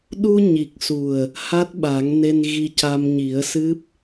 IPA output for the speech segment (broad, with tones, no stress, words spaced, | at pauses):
ɗu˧ɲi˨˩k̚su˨˩ə̯ | ha˦˥t̚ɓa˨˩˦ŋne˧n ɣi˧ca˧m ɲi˨˩˦ə̯sɨ˦˥p̚